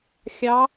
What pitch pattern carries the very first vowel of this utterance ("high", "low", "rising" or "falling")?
rising